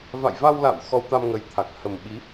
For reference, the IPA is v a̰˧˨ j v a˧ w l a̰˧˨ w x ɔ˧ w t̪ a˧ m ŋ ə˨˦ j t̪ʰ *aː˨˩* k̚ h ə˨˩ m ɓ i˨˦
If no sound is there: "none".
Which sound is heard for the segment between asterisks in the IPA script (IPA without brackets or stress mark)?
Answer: a˨˩